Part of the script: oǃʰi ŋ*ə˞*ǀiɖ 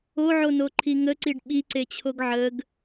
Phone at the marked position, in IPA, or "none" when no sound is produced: ə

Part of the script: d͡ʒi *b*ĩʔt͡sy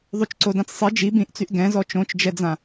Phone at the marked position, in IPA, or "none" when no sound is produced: b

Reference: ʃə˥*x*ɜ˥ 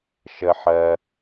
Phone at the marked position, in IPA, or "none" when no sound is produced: ħ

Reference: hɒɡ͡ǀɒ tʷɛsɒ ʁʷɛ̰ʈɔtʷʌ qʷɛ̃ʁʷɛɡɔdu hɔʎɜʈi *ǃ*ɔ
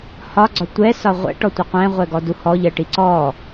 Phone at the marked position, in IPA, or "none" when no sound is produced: ǀ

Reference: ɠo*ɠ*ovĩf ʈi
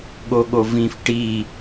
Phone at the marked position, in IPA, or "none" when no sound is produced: ɠ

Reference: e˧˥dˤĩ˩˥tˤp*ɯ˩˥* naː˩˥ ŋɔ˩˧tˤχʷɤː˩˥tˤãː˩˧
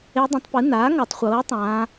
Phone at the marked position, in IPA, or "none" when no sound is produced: ɯ˩˥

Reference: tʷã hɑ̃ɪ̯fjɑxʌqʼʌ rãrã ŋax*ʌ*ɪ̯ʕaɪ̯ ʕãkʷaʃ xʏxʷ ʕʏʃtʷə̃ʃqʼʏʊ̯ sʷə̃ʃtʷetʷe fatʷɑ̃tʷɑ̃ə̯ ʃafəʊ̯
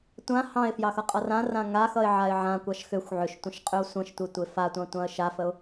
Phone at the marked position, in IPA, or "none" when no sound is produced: ʌ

